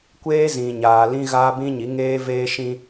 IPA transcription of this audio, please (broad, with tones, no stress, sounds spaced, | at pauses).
kʷ eː˦ z ĩ˨ ɲ aː˨ l ĩ˦ ɣ aː˦ b ĩ˦ ɲ i˨˦ ŋ eː˦ v eː˦ ʃ ĩ˦